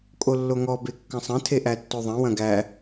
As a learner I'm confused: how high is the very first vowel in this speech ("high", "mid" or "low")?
mid